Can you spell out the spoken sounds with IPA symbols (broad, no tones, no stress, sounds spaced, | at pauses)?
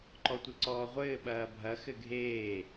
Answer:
ǃ ɔ tʷ ɘ ǀ ɔː ʁʷ ɘː ɓ ɐː bʱ ɐ x ɘ ɡʱ eː